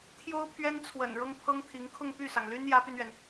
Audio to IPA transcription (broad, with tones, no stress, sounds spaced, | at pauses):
t̪ʰ j o˥ ʊ̯ pʰ ɥ ɛ˥ n t͡sʰ w ə̰˨˩ n ɻ ɤ˥ ŋ pʰ ɤ˥ ŋ t̪ʰ i˧˥ ŋ kʰ ʊ˥˧ ŋ p y˥˩ s ɑ˩ ŋ l y˥ n j ä˧˥ p y˧ n ɥ ɛ˩ n